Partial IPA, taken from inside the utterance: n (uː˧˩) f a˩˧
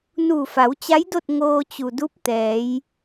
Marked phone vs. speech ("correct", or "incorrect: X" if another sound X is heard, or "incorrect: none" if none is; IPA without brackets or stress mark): correct